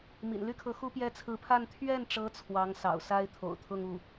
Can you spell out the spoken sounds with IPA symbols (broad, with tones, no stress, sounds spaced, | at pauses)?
m ḭ˨˩ n l y˥ kʰ ɤ˧˥ x u˥ p j ɛ˥ t͡sʰ ɹ̩˧˥ pʰ a˥˧ n t̪ʰ ɥ ɛ˥˩ n ʈ͡ʂ ɤ˧˥ t͡sʰ w ɑ˧˥ ŋ s ɑ̰˨˩ ʊ̯ s a˥ ɪ̯ t̪ʰ o̰˨˩ ʊ̯ t̪ʰ ʊ˥˧ ŋ u˥˩